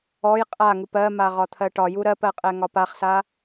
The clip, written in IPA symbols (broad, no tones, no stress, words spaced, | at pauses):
ɔj qʼaŋup ɜma ʁɒt̪ʰɜʈɒju ɾɜpɜqʼɛ ŋɒpaχsa